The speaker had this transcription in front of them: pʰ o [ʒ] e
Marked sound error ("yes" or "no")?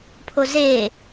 yes